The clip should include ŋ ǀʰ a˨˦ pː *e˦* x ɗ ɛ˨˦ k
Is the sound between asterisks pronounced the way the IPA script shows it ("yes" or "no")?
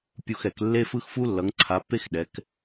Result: yes